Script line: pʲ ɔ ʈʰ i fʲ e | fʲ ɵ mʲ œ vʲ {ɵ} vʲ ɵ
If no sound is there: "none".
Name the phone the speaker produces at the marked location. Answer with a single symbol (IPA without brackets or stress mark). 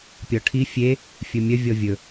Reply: ɔ